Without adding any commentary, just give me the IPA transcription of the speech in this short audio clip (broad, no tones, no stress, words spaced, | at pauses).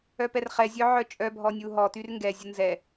œpɛrχɛ zʲœʕœt͡ʃʼœ bʱɔnʲuɦɔ tyrŋɡɛ zʲənzɛ